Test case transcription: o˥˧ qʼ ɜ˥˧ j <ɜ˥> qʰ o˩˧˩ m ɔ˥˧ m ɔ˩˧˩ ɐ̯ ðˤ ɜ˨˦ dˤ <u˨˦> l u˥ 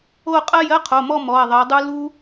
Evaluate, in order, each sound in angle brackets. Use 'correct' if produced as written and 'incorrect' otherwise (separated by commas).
correct, incorrect